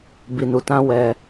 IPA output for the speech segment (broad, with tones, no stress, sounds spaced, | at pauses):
b i˨ n u˨ t ã˧ w ɛ˧